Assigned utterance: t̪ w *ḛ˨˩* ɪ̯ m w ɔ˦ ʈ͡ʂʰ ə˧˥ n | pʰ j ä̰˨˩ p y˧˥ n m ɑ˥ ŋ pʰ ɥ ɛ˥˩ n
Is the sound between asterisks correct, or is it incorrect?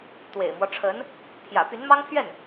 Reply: correct